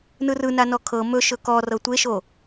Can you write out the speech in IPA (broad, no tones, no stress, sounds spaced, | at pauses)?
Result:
n ɯ r ɯ n a n ɔ kʰ ɤ m ɵ ʃ ɵ k ɔ r ɤ tʷ e ʃ o